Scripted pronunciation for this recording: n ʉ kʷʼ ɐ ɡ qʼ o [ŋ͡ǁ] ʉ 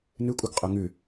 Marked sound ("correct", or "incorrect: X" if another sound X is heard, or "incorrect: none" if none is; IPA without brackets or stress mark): incorrect: ŋ